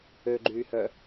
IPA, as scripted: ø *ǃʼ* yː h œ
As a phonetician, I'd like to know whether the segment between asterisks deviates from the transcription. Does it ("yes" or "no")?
yes